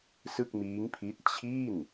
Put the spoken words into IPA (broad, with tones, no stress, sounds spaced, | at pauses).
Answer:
s ɯ˥˩ k̚ m iː˦˥ ŋ pʰ i˦˥ t̚ t͡ɕʰ iː˥˩ n